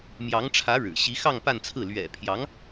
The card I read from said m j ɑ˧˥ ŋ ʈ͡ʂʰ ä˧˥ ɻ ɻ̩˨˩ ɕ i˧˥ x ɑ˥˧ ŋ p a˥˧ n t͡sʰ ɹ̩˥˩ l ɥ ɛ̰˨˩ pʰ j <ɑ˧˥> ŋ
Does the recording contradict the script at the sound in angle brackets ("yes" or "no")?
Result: no